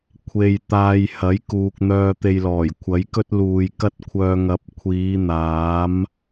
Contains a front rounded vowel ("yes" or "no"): yes